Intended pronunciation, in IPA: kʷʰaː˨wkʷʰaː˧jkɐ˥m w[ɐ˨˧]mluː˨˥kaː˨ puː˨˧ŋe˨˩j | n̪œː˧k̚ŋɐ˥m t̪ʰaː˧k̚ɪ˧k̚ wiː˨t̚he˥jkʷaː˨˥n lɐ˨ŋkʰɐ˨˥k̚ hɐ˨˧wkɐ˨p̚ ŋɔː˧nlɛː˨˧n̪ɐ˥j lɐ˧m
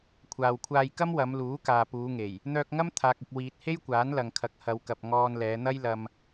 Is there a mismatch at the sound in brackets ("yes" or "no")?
no